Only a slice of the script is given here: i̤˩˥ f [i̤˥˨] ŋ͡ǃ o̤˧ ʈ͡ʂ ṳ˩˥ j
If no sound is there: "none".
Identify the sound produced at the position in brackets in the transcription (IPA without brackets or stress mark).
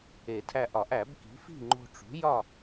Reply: i̤˥˨